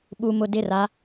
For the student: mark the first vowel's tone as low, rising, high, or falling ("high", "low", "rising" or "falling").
low